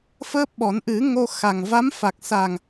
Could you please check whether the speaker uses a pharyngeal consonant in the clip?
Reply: no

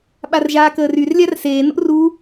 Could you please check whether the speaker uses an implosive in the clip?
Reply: yes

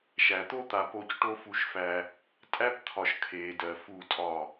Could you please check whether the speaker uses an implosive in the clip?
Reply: no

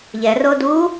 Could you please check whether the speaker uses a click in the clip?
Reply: no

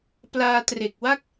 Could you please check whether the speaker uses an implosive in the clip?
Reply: no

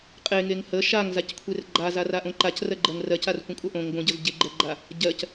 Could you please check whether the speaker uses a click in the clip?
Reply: yes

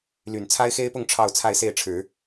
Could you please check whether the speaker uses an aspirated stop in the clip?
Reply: yes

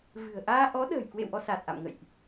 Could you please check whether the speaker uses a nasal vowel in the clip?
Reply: no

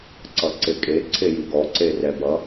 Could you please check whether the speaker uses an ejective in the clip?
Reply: yes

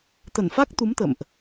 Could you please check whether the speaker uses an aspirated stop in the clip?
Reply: no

